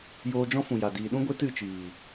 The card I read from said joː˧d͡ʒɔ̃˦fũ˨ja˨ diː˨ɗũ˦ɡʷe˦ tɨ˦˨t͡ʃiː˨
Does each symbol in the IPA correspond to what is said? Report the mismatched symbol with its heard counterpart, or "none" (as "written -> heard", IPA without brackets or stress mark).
none